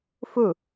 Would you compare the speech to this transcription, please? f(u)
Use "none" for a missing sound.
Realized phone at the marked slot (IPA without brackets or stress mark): u